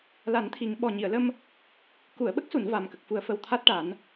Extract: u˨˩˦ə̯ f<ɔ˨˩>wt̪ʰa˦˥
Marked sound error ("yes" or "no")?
yes